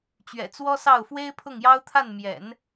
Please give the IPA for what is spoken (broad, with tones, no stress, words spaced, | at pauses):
t͡ɕɥɛ̰˨˩t͡swɔ˥sɑ˥˩ʊ̯ fwe˥ɪ̯pʰʊ˥˩ŋjɑ˥ʊ̯t̪ʰa˥˩n mjɛ̰˨˩˦n